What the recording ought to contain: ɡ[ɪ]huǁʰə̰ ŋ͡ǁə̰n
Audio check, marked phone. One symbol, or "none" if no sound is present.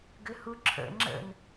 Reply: ʏ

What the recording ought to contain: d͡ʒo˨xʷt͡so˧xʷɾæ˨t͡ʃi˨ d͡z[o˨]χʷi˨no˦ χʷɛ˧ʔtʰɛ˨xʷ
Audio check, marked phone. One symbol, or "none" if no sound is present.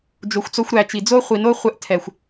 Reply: o˦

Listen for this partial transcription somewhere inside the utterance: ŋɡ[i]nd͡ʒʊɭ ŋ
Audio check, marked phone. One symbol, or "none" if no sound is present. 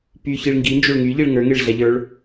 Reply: i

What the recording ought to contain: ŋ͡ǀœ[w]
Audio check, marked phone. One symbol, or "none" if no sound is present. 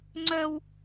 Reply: w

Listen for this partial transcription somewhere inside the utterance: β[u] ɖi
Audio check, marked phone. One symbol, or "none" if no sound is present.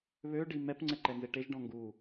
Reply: ø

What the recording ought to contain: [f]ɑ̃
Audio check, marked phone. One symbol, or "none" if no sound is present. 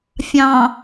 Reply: fʲ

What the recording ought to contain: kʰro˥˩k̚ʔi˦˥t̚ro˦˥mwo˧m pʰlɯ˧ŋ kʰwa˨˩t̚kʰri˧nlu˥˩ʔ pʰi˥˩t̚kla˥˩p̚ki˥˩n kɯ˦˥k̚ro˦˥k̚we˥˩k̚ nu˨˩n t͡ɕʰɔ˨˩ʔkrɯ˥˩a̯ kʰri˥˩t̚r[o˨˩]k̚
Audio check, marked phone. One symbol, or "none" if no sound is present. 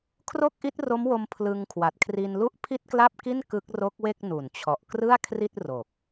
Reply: o˨˩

